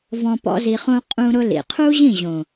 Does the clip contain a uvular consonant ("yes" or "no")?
yes